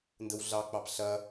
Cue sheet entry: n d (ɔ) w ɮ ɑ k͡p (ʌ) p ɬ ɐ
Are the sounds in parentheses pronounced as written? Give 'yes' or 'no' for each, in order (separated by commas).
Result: no, no